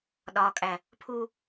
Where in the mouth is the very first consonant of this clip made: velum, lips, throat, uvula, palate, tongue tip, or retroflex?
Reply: tongue tip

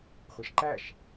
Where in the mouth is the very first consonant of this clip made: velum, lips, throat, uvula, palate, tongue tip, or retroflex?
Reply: uvula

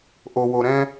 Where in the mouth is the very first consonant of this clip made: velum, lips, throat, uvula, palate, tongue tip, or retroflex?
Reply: throat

